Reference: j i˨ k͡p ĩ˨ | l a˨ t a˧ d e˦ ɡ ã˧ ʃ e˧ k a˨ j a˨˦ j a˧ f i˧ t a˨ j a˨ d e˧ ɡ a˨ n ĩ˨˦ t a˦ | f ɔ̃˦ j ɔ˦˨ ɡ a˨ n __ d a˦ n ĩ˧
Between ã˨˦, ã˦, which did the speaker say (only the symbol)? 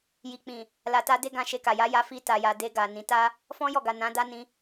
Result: ã˨˦